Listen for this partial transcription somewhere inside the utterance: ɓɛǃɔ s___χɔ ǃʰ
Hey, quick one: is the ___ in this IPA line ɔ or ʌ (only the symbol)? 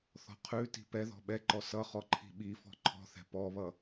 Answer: ʌ